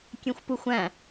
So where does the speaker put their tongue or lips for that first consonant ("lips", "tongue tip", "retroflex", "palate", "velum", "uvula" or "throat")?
velum